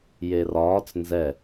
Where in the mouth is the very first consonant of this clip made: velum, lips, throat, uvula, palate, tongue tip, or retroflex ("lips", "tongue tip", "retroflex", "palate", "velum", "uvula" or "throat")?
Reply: palate